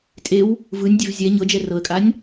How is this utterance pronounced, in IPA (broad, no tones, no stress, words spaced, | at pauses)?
tʼew | vɯnʲdʲev zʲɛ ɲɤd͡ʒɛ rɤə̯kʼanʲ